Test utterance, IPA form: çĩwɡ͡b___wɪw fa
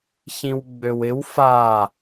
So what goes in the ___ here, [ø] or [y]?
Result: ø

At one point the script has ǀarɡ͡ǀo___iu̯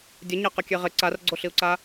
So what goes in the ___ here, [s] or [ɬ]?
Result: ɬ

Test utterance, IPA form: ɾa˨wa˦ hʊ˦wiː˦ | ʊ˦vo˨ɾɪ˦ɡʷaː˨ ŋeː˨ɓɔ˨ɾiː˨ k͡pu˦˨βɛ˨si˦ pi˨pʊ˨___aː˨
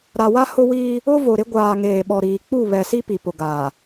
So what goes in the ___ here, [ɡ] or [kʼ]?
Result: ɡ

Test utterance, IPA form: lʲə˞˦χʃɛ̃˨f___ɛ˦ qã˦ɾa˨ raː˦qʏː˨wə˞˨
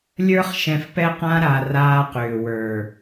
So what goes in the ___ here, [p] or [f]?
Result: p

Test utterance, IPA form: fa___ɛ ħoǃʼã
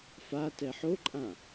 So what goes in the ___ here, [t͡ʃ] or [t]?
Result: t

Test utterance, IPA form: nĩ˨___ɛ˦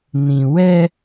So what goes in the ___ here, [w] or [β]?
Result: w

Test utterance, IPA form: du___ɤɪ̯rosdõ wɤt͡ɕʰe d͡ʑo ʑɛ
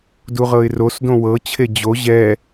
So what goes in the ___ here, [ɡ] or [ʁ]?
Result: ʁ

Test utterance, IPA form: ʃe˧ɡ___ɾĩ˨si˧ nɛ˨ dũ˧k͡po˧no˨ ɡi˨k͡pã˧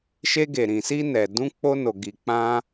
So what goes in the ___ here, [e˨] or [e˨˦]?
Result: e˨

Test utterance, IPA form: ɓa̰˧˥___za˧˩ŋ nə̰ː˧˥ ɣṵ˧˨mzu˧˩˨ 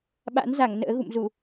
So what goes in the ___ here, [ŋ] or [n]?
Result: n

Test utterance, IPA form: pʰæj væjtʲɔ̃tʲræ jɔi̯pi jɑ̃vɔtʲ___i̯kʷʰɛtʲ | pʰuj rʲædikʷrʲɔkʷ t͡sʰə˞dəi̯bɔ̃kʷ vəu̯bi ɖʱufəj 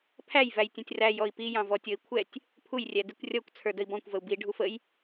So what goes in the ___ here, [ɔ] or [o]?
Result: ɔ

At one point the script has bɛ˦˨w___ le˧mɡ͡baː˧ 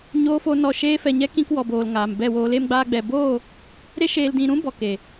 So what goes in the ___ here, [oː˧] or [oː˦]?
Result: oː˧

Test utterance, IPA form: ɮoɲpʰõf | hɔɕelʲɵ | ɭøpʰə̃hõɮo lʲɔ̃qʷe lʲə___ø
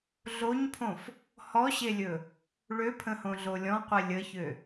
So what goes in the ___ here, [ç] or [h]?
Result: ç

